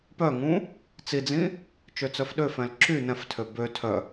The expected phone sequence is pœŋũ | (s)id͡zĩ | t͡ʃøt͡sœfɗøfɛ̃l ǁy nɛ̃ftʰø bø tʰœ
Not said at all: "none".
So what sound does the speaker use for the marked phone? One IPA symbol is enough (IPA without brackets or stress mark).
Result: t͡s